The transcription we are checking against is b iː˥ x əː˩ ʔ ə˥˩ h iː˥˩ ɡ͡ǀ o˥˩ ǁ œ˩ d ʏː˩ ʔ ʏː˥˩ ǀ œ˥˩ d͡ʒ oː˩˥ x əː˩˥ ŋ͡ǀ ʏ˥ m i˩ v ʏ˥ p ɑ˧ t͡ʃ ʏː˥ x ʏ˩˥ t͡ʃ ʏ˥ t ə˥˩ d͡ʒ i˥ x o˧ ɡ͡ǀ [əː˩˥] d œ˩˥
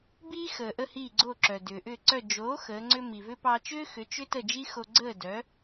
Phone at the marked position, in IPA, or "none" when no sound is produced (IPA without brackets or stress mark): əː˥˩